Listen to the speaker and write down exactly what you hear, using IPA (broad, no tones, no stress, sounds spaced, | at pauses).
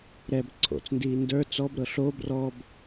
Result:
ɾ ɛ b ǀʰ o̰ t͡s n d iː n d ə˞ t͡s ɔ b ɾ ɤ ɬ o b r ɔ b